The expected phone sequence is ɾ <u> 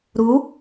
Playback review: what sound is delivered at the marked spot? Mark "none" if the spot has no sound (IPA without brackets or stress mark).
u